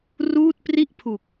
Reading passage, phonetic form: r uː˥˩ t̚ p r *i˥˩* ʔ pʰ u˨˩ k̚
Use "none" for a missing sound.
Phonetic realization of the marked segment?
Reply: i˥˩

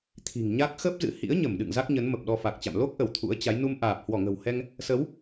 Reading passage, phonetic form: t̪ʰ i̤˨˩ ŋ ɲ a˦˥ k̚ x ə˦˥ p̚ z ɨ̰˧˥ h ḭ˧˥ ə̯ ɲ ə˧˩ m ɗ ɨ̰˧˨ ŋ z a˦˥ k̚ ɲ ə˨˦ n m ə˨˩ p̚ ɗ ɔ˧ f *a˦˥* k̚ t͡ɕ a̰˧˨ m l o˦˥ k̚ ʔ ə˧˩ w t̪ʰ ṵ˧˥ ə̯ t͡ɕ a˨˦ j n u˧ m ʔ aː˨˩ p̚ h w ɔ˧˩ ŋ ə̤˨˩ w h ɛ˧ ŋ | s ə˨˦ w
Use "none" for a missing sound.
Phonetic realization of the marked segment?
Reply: a˨˩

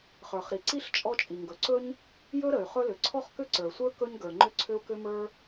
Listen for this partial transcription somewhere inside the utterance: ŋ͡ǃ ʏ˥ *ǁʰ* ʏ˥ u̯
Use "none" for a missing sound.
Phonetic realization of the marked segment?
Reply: ǀʰ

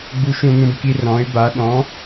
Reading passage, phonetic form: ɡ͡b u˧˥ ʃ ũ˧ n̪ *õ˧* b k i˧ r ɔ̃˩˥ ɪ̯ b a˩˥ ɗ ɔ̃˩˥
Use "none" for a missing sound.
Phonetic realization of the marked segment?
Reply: ũ˧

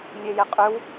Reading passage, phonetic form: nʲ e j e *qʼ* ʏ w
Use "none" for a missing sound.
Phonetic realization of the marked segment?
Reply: qʼ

